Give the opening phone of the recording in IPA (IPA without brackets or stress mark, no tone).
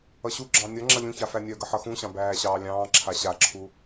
ʌ